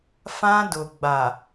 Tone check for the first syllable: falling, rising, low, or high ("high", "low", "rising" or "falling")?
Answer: high